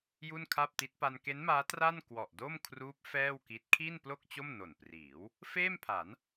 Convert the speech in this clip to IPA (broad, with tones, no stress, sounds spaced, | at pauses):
j u˥˩ n kʰ a˥˩ p̚ t i˦˥ t̚ p a˧ n k e˦˥ n m aː˦˥ t r a˥˩ n k w ɔ˨˩ ʔ d o˥˩ m kʰ r uː˦˥ p̚ f ɛː˥˩ w k i˦˥ t̚ kʰ iː˥˩ n p l o˥˩ k̚ t͡ɕ o˥˩ m n o˨˩ n p r iː˩˦ w | f eː˥˩ m pʰ a˩˦ n